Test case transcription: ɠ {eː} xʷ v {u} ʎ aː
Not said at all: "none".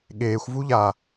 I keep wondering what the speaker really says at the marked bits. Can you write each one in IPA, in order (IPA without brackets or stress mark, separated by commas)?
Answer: eː, u